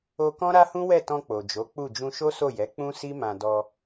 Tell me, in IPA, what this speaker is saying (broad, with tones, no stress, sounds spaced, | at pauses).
o˦ k ɔ̃˦ ɾ a˦ h ũ˦ w ɛ˦˨ t ɔ̃˧ k͡p o˨ d͡ʒ o˨˦ k͡p u˦˨ d͡ʒ ũ˧ ʃ o˦ s o˦˨ j ɛ˨˦ k͡p ũ˦ s i˦ m ã˧ d ɔ˧